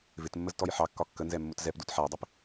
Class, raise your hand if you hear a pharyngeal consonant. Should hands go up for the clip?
yes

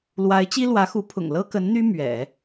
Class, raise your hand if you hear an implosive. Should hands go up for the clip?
no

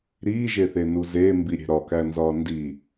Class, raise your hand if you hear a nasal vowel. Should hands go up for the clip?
no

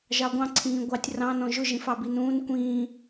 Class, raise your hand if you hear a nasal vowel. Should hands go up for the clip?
yes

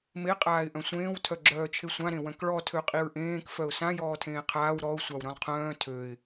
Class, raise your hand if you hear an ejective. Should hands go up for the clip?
yes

